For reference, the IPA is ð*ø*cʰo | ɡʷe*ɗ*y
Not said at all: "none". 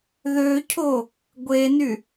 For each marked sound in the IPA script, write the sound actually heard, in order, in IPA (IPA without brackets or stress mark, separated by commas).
ø, n